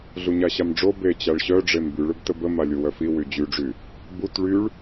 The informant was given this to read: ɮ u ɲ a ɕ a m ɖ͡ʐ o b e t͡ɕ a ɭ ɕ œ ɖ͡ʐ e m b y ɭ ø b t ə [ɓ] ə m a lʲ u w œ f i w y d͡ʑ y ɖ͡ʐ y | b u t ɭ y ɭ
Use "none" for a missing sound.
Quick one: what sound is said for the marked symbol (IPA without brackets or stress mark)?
b